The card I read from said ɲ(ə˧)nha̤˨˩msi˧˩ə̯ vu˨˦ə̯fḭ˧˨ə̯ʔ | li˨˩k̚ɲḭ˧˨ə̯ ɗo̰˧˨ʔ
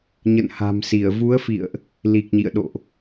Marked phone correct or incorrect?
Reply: incorrect